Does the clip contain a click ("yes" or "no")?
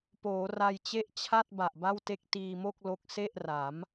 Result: no